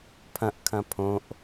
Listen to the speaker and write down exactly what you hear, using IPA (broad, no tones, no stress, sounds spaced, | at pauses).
pʰ ɐ̃ ʔ kʰ ɐ̃ pʰ õ ʔ